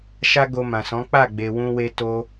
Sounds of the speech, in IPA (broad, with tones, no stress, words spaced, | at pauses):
ʃa˦ɡo˧mã˨sɔ̃˨˦ k͡pa˦˨ɡ͡be˨wũ˧we˧ to˧